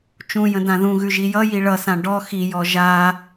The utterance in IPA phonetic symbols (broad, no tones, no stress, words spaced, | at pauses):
t͡ʃũjə̃ dãðũɣʉ ʒijʌji ɭʌsã ɖɔ xijɔ ʒa